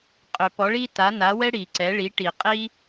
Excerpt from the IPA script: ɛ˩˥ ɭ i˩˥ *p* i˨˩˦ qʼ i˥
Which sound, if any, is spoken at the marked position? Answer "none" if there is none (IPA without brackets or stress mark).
ʈ